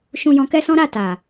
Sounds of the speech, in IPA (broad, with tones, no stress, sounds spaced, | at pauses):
ʃ ũ˧ j ɔ̃˧ k ɛ˦ s ɔ̃˦ ɾ a˦˨ t a˨